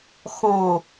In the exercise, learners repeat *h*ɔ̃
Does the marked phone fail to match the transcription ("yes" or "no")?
yes